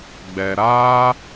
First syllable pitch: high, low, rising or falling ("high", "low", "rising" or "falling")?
low